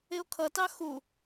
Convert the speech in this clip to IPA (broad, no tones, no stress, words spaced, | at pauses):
ɪo̯kʰʌtɑ xu